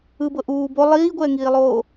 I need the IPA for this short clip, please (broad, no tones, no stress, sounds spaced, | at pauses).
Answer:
ɯ b ɤ ʔ uː b o lˠ iː ɡʷ ɛː ŋ iː lˠ oː